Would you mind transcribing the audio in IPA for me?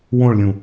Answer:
wõɭlʲũ

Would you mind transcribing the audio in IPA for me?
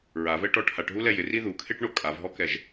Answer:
ɹavɛʈɔ ʈʰaʈɦulɛ jɪri ðukʰeʈɳo kʼavɦɔkɛʒ

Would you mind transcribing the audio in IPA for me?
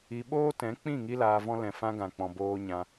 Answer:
i˨ ɓoː˦tɛ̃˨˦k͡pĩ˦˨ ŋi˦laː˧vɔ̃˦ lɛ̃˨fã˧ ɡã˨k͡pɔ̃˨ boː˧ɲã˧

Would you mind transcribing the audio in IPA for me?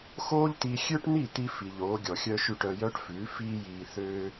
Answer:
xoː˥ʎt̪i˧ xʲø˥ʈn̪i˥˩t̪i˧ fi˩ʎ oː˩˥ɡʲɔ˩xʲœ˥ʃʉ˥˩ʈ œ˧jœ˥ʈfʉː˩˥ fiː˥jiː˧θøː˥

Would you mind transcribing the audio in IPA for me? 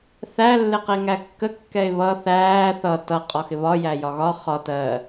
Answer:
θæ lːɪqiŋækːə kːɛɪ̯βʌ θæː θʌ tʌ qʼɒxɪβɒ jæjɒɣɒ χɒt ɜ

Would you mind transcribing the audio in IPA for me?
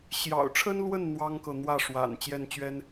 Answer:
ɕjɑ̰˨˩ʊ̯ʈ͡ʂʰə˥nlwə˥˩n n̪wɑ˥ŋkɤ˨n̪wä˥˩ʂwa̰˨˩n t͡ɕjɛ˥˩nt͡ɕɥɛ˥n

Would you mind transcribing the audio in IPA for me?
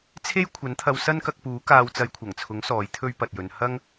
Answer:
t͡sʰe˥j kʷʰɐ˨˥nt̪ʰɐ˧w sɐ˥nkɐ˧k̚puː˨˥ kaː˧wt͡sɐ˧jkʷʰɐ˨˩ŋt͡sʰʊ˨˥ŋ sɔː˨˥jt̪ʰɵ˥ɥpɐ˨t̚jɵ˨˧n hɐ˥ŋ

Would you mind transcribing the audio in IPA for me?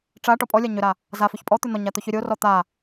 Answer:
ʈ͡ʂa ʈɔpʼɔlʲa ɲʏɾa | zafʏç pʼɔt̪ʏ n̪ɔɲa t̪oçʏɾʲorɔ t̪a

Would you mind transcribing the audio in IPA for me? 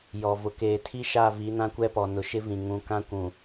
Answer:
jɔ˨vʊ˨ keː˨ tʰi˦ʃa˦˨ vi˨˦nã˦kʷɛ˦pɔ˨ nʊ˨ʃɪ˦vĩ˨ ŋũ˨ kã˦kʷũ˨

